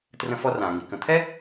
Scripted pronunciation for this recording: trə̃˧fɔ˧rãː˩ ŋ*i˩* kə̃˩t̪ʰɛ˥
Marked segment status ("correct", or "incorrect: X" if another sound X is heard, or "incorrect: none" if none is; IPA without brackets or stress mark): correct